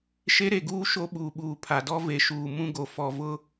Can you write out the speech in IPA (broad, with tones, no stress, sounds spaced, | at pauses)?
ʃ e˦ ɾ e˨ ɡ uː˦ ʃ o˦ ɓ uː˨ ɓ uː˨ pʰ a˨ d ɔ˦ v e˨ ʃ uː˨ m ũ˦ ɡ o˨ f ɔ˨ v ʊ˦